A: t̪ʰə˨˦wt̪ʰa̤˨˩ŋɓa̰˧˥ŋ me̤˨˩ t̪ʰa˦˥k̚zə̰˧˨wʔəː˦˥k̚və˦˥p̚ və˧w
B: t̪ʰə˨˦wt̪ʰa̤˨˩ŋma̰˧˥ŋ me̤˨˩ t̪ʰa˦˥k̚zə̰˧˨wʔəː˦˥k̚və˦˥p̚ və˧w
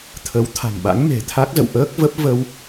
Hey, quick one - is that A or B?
A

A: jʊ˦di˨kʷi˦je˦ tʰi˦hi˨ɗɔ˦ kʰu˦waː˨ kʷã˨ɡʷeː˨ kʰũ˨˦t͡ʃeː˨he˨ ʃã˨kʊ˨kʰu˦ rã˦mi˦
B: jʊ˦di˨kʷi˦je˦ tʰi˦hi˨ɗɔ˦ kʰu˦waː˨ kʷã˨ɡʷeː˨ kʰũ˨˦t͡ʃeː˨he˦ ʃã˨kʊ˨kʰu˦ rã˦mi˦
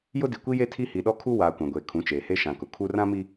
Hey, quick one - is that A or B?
B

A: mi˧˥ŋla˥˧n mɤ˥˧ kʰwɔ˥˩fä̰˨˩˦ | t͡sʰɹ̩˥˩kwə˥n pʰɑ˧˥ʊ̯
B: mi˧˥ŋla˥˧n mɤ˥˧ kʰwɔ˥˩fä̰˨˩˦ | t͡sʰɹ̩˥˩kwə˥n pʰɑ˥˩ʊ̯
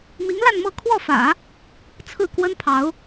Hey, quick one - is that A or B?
A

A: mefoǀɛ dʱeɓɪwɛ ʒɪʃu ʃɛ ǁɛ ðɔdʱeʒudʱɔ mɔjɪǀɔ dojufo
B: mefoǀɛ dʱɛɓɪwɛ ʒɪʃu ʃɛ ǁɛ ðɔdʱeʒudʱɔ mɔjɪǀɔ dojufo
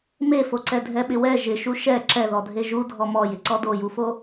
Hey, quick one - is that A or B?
B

